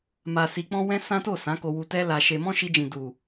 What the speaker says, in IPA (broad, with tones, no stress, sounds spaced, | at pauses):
m a˧ s i˧ k͡p ɔ̃˦ w ɛ̃˦ s ã˦ t o˦˨ s ã˨˦ k o˧ w u˧ t ɛ˦ l a˧ ʃ e˧ m ɔ̃˦ ʃ i˧ d͡ʒ ĩ˨ d u˨